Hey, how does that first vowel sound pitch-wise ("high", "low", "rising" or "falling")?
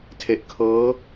low